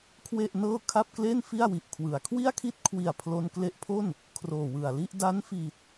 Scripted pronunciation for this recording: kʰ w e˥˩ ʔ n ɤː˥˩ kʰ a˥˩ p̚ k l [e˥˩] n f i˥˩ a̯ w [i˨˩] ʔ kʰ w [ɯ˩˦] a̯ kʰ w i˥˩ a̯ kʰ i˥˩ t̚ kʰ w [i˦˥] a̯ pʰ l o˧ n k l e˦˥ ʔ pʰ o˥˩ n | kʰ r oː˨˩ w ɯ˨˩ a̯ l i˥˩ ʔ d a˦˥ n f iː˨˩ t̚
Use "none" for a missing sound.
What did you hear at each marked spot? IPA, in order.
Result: e˥˩, i˨˩, ɯ˩˦, i˨˩

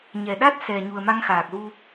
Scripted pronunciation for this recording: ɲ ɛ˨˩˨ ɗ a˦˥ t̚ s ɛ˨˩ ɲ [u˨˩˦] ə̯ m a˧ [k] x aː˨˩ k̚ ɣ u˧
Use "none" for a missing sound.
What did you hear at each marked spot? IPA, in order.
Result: u˨˩, ŋ

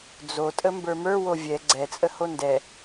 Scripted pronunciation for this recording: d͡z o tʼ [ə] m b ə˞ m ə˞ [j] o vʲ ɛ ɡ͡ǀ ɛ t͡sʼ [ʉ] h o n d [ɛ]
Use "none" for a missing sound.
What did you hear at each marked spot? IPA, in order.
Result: ə, w, ə, ɛ

